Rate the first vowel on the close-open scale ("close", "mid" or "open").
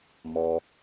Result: mid